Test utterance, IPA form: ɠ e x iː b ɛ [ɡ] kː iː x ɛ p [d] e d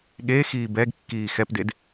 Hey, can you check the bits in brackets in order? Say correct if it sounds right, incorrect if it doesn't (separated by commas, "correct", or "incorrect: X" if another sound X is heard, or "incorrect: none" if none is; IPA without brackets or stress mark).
correct, correct